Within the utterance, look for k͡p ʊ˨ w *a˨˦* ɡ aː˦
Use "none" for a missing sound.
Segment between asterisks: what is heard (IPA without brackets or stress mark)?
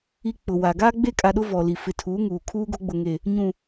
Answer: a˨